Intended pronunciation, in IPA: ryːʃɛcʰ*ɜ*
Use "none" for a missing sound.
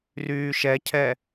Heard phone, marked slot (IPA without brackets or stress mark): ɛ